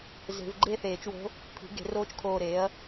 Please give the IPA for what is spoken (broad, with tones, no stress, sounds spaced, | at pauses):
z e̤˨˩˦ v ɡ͡ǃ e˥˧ θ eː˨˩˦ t͡ʃ w o̤˧˥ | pʰ i̤˩˥ ɡ e̤˨˩˦ r oː˧˥ t͡ʃ kʰ oː˧˩ ɾ eː˩˥ ɐ̯